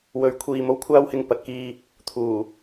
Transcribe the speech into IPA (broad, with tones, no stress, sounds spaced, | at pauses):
w ɵ˧ ɥ kʷʰ iː˧ m o˥ w kʷʰ aː˥ w h ɪ˧ ŋ p ɐ˨˥ t̚ k iː˧ | t̪ʰ uː˨˩